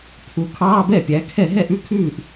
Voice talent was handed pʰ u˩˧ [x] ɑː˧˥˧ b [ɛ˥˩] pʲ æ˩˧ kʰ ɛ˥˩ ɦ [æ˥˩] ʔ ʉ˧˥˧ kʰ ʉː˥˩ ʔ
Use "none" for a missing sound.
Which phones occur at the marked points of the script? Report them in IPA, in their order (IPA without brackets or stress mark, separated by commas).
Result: kʰ, ɛ˥˩, ɛ˥˩